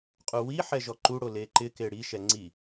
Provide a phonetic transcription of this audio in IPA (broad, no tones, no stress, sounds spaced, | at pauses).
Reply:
qʼ u w i ħ ɛ ʒ ɔ ǃ u ɽ o l e ǃ ɪ k e ɽ i ʃ ɛ ŋ͡ǀ i